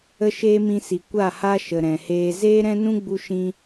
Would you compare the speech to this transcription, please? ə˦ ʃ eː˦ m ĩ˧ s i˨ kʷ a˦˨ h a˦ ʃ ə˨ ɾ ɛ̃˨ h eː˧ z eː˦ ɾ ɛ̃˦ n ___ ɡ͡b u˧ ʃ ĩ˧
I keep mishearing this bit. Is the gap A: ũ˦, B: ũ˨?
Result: A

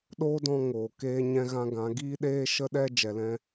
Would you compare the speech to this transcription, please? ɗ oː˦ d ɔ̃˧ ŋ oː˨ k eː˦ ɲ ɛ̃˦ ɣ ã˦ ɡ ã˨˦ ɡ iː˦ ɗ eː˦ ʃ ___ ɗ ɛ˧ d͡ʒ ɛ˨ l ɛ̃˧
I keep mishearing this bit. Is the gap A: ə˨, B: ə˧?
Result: B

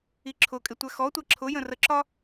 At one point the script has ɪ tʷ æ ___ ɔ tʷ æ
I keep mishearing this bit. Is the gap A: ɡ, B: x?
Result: B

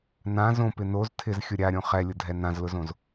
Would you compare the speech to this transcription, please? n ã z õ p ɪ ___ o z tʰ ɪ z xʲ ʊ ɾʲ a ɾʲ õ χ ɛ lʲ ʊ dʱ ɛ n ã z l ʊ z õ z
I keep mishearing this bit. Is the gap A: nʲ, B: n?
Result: B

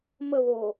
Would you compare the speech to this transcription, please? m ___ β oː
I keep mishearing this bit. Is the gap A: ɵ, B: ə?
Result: B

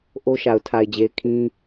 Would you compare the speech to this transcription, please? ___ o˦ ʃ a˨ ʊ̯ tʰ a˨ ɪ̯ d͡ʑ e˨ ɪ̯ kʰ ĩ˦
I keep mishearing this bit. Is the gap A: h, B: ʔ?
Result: B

